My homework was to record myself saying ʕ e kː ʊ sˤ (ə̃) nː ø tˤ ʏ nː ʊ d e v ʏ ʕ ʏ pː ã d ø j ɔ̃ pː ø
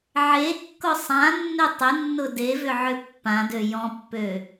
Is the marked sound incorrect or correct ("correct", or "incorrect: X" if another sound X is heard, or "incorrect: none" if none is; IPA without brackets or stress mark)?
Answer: incorrect: ã